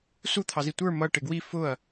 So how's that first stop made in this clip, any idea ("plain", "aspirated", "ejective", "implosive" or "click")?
aspirated